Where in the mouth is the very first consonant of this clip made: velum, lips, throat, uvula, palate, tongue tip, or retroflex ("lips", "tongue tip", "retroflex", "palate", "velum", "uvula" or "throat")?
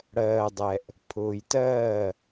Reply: retroflex